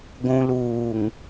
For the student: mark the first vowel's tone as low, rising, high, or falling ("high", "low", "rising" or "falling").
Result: low